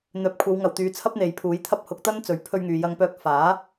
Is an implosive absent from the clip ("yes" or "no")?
yes